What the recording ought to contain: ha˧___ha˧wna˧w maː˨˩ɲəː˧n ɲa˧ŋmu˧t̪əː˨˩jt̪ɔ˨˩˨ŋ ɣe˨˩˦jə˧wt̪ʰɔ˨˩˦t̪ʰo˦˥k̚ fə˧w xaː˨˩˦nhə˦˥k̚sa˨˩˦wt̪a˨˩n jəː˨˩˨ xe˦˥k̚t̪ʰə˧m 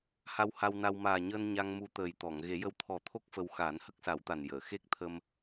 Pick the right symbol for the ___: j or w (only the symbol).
w